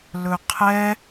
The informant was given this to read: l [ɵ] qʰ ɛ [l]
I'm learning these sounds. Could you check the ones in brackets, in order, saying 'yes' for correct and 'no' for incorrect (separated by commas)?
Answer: yes, no